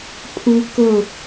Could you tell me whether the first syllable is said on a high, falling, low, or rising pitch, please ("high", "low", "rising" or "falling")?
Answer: high